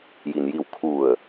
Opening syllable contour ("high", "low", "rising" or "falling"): low